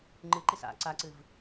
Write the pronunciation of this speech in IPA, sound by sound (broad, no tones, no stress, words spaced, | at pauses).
ŋ͡ǃɨǃis a̰ ǀaǀɨv